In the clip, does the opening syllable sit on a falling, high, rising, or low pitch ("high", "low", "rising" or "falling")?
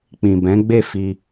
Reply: low